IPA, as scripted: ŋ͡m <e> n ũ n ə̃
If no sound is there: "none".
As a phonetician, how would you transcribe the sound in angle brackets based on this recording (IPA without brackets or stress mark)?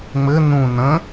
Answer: ɘ